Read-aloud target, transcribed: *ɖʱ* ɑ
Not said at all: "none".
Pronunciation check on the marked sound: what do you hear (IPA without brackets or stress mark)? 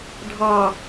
ɖʱ